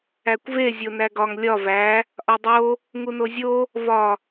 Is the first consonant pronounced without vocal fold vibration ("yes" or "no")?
yes